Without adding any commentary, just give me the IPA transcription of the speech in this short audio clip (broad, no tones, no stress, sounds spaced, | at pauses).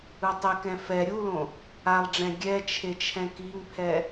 ɯ tˤ i k ɛ̃ f ɛ ɾʲ u l õ | a lˠ ɖ͡ʐ ɛ̃ ɡʲ ɛ t͡ʃʰ e t͡ʃʰ ɛ̃ k i ŋ pʰ ɛ